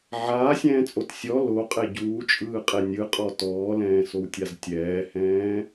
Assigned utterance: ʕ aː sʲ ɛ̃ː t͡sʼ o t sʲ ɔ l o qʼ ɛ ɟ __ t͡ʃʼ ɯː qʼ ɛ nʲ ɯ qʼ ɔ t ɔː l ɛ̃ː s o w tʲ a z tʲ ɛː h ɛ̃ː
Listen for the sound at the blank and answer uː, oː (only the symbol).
uː